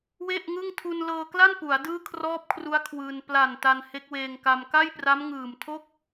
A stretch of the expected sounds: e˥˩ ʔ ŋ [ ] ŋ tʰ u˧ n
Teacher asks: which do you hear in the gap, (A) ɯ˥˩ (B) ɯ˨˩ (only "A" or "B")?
A